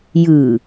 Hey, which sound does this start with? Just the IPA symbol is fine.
j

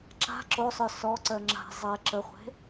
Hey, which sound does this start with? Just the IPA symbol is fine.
ǁ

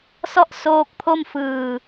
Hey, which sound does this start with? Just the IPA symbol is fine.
s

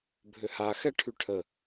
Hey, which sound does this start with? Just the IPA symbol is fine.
bʱ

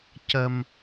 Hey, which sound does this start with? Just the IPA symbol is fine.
c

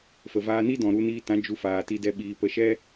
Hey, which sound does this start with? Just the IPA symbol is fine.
f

